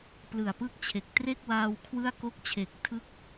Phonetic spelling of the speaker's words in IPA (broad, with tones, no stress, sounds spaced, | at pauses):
p l ɯ˨˩ a̯ p ɯ˥˩ k̚ t͡ɕʰ e˨˩ k̚ t r e˥˩ k̚ w aː˧ w kʰ w ɯ˥˩ a̯ k o˥˩ k̚ t͡ɕʰ e˨˩ k̚ tʰ ɯ˦˥ k̚